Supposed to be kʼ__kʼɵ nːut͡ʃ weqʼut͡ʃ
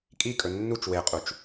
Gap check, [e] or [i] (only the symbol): i